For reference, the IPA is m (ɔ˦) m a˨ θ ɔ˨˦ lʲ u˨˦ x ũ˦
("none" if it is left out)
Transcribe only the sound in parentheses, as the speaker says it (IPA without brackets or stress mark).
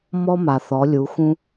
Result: ɔ˦